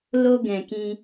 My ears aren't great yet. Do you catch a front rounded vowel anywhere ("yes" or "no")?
no